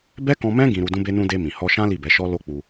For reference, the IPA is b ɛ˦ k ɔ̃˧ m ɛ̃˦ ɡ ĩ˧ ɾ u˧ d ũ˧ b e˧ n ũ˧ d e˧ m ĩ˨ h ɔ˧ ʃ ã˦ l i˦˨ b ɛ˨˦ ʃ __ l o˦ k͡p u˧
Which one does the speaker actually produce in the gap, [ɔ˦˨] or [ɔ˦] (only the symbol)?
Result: ɔ˦